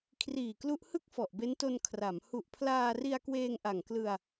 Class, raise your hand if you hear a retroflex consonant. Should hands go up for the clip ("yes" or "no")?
no